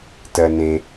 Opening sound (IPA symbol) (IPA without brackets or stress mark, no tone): t